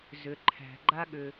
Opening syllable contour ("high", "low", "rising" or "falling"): low